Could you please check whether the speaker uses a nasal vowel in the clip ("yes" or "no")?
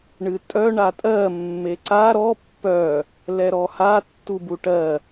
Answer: no